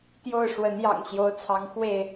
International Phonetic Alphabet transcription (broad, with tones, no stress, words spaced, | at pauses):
t̪jo˥˨ʊ̯ ʂwə˨˦njɑ̰˨˩ŋ ɕjo˨˦ʊ̯t͡sʰɑ˨˦ŋ xwe˥˨ɪ̯